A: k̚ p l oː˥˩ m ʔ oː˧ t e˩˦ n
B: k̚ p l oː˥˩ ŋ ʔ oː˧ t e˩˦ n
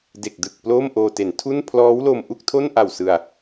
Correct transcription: A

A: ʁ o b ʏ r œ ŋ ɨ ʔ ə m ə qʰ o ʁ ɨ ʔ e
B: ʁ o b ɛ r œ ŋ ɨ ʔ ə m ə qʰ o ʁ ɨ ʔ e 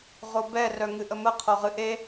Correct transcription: B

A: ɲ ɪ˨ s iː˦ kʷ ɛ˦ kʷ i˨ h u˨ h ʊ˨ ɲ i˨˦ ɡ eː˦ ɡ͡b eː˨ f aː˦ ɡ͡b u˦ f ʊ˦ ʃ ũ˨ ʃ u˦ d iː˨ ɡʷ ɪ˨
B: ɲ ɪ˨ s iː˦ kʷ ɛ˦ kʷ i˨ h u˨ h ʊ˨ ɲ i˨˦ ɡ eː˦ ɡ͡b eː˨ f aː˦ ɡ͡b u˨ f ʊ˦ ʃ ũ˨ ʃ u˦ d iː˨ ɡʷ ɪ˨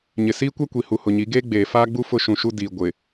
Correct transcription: A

